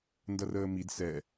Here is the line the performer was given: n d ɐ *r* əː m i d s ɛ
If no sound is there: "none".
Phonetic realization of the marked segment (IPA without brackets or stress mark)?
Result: r